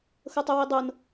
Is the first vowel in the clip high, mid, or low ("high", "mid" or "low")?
mid